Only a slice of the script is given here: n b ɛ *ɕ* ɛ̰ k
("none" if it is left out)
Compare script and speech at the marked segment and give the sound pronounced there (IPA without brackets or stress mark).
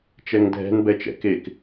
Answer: t͡ʃ